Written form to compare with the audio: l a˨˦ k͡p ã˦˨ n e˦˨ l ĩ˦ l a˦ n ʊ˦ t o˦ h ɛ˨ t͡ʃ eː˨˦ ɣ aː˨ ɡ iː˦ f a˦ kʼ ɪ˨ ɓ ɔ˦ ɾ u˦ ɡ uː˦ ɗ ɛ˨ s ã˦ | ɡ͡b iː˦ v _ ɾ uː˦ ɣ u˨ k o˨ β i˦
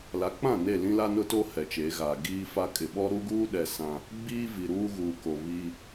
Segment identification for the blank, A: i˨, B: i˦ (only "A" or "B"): A